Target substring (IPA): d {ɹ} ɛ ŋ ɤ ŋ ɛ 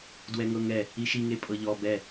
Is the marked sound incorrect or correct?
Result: incorrect: w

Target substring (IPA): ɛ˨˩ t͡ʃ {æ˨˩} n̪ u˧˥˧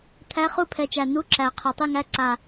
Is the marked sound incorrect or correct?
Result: correct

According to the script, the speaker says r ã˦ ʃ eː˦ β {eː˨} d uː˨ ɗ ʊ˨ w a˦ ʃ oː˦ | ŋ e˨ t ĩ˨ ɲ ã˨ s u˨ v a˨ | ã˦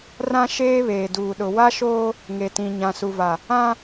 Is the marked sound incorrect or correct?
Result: correct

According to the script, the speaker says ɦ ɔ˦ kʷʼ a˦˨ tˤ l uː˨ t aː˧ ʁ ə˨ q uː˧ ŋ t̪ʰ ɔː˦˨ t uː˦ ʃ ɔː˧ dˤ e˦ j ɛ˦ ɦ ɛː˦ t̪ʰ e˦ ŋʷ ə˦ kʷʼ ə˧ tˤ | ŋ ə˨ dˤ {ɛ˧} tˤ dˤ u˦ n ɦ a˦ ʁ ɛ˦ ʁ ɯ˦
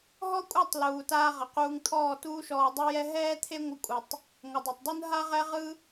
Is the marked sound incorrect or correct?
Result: incorrect: ɛ˨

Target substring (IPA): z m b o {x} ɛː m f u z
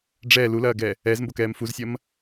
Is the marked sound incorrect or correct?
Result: incorrect: k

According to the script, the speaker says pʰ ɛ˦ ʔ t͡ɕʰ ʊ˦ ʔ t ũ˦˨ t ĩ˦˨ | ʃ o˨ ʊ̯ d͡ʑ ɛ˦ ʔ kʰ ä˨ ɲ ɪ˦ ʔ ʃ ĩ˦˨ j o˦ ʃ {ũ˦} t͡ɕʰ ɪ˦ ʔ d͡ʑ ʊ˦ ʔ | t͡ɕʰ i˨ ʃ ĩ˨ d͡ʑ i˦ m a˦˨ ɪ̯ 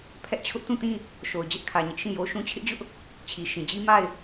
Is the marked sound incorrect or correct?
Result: correct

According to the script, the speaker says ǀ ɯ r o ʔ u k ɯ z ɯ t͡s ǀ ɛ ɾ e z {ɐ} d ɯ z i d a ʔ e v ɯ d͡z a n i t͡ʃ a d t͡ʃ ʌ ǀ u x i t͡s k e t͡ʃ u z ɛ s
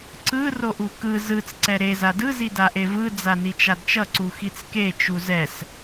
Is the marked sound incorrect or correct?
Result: incorrect: a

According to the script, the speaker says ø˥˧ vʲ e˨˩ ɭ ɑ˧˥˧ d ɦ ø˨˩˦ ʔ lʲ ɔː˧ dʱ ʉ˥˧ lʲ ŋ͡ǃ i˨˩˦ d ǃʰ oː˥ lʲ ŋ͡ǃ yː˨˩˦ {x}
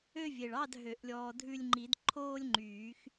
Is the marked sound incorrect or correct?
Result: correct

